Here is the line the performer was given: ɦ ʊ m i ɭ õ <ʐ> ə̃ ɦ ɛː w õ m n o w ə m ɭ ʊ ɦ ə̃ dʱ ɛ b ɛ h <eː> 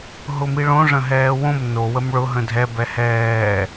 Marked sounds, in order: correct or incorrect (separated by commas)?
correct, incorrect